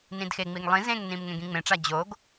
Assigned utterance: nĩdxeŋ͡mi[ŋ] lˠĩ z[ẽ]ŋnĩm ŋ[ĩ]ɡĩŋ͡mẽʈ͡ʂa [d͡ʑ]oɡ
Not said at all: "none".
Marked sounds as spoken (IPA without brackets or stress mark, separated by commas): ŋ, ẽ, ẽ, d͡ʑ